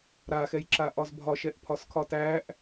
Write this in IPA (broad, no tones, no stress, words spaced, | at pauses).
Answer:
ɾaxɛjǁaʔɒz bʱɒʃɛʔpʰɒskʰɒ tæʔ